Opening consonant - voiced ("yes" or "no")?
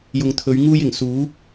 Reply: yes